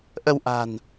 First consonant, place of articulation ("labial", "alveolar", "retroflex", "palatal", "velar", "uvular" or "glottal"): glottal